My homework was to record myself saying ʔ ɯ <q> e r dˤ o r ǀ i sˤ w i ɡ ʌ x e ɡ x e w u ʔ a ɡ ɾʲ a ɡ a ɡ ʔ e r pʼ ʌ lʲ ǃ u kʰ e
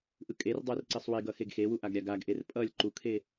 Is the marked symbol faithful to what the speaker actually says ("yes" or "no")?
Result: no